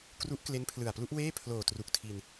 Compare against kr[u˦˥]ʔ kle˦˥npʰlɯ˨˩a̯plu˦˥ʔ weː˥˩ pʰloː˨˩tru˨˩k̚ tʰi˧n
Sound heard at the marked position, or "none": u˦˥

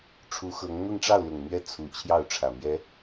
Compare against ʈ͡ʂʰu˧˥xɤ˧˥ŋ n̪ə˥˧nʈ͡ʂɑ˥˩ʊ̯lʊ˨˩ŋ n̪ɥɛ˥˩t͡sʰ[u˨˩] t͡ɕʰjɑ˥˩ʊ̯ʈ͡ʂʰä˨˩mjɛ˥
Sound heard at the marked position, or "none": u˨˩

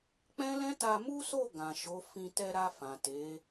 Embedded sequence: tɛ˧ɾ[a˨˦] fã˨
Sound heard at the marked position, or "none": a˧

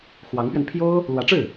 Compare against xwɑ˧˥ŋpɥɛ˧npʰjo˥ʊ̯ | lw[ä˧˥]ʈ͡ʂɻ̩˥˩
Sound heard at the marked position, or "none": ä˧˥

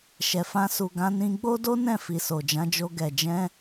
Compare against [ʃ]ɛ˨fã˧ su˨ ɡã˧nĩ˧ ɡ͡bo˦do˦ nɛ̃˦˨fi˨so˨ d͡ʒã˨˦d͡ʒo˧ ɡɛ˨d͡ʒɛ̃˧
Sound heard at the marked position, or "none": ʃ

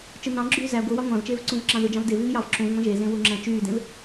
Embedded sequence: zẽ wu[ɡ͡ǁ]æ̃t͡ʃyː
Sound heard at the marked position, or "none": ŋ͡ǁ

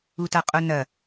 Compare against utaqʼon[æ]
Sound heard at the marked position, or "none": ɐ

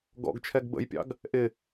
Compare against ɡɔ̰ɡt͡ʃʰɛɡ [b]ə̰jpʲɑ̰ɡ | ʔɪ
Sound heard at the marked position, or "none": b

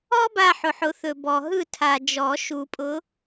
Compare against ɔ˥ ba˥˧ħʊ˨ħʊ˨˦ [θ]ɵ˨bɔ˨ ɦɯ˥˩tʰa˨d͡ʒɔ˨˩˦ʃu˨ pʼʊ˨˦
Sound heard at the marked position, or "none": θ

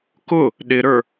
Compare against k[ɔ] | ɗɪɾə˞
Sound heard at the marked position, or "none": ʊ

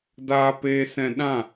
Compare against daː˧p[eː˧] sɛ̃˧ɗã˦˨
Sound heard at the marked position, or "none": eː˧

